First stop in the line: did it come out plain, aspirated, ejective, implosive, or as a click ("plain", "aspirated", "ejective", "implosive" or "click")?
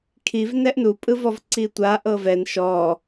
aspirated